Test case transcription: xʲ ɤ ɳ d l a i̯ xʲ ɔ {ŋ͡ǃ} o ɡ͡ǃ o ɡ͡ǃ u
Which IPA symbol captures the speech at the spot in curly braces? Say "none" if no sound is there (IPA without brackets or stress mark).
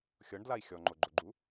ŋ͡ǃ